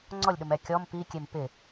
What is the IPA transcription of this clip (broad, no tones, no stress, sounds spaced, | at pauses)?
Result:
ŋ͡ǀ ɔ lʲ ɗ ʊ m ɛ kʲ ɔ m p i kʲ e m p ɪ